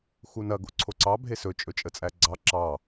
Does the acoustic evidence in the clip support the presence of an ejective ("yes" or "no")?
yes